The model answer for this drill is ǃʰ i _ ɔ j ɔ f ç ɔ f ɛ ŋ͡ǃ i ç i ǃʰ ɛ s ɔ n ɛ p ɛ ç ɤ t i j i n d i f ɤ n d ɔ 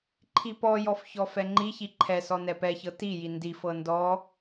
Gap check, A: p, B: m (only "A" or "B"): A